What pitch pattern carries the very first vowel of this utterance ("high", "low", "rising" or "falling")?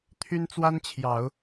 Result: high